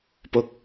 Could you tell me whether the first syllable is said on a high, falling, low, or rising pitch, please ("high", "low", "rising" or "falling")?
low